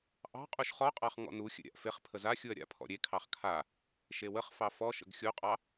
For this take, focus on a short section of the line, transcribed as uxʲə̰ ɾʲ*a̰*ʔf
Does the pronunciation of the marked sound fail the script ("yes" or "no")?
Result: no